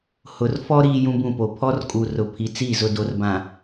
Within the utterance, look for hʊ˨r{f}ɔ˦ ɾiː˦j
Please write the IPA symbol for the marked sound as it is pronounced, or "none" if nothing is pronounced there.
f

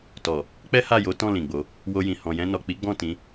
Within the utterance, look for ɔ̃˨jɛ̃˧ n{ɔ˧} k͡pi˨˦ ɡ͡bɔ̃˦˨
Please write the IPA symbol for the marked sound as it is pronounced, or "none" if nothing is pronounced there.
ɔ˨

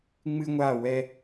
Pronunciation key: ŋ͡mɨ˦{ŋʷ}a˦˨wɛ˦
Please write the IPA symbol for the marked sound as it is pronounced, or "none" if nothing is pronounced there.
ŋʷ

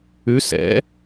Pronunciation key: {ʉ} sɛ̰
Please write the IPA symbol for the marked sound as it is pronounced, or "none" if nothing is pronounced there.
ʉ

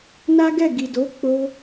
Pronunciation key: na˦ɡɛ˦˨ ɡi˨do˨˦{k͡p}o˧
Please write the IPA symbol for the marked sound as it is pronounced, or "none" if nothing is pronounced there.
k͡p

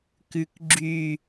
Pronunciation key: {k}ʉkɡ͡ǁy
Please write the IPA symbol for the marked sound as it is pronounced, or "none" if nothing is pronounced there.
k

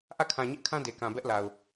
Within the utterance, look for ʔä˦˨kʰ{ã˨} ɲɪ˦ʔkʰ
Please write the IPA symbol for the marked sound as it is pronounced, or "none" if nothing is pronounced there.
ã˨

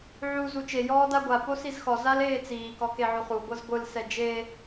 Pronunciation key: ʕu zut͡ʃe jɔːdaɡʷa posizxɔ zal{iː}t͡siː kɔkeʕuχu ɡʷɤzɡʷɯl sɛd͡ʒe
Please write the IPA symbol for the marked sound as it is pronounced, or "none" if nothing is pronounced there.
eː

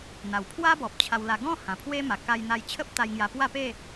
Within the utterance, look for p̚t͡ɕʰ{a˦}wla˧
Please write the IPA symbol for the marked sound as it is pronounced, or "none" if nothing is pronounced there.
a˧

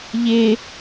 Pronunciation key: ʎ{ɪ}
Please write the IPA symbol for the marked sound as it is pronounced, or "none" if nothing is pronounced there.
ɪ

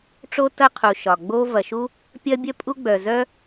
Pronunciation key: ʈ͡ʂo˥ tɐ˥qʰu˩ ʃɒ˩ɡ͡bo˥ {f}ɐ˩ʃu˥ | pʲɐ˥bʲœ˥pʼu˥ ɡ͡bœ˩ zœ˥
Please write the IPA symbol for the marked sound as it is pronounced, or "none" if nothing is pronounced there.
v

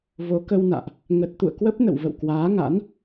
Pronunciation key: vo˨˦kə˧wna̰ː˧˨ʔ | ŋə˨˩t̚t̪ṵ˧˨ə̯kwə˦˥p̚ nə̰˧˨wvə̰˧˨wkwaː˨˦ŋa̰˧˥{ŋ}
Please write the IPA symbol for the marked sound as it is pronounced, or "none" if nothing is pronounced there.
n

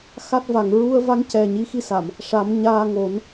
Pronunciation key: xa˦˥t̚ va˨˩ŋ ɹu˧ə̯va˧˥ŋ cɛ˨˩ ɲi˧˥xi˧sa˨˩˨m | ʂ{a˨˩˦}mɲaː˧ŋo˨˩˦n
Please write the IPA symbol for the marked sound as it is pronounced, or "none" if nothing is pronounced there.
a˨˩˦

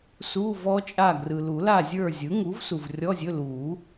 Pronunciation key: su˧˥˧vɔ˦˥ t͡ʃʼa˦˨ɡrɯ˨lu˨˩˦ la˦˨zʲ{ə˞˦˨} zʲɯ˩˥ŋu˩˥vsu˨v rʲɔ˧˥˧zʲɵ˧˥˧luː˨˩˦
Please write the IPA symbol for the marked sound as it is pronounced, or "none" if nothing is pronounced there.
ə˞˦˨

